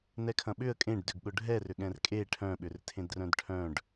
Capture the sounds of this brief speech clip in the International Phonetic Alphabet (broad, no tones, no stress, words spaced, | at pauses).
nɛkʰɐ̃ɓʏə̯ kʼẽɖdʏɡ ɠʊɖʱɛrʏɠɛ̃r kʼe ʈʰœ̃ɓʏrtʰẽdrœ̃d ʈʰœ̃ɖ